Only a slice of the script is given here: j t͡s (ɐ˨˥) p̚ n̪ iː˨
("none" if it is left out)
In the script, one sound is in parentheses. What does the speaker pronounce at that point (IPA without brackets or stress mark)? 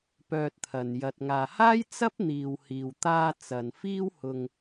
ɐ˥